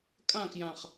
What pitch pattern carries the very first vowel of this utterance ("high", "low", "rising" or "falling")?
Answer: falling